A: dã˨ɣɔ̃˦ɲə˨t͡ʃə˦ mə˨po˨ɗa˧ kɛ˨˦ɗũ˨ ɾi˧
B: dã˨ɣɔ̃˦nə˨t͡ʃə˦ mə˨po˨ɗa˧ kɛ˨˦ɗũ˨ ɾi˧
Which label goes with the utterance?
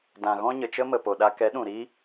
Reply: A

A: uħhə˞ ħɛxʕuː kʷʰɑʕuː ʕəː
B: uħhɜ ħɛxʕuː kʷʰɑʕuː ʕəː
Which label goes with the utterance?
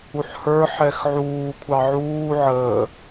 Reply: A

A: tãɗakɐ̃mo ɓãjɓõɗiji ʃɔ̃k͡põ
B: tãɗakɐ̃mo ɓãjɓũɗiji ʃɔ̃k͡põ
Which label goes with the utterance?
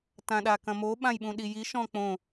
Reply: B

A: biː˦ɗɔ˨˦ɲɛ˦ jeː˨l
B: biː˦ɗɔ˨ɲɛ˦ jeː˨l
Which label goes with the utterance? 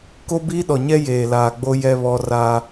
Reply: B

